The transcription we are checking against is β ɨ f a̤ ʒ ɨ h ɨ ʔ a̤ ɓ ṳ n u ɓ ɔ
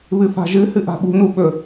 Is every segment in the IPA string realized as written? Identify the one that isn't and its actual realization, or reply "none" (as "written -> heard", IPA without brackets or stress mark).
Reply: ɔ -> ɵ